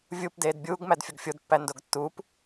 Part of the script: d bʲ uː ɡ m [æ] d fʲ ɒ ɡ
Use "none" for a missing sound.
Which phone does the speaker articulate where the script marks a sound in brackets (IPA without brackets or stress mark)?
æ